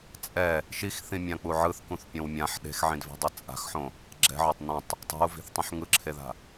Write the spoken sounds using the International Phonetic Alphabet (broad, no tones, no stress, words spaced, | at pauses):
t͡sʼɛ | ʃixθĩmʲãk͡pu ʕɯθkũθpʲõw mʲãħ ɗe̤xʕĩdve̤dˤi t͡sʼa̤xħõ | ɡ͡ǁɛ̤ʕotˤ nõtˤ | tˤe̤u̯vi̤θtˤõħ ŋɯǁʰeða̤